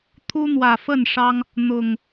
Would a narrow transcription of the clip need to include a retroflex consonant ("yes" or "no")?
yes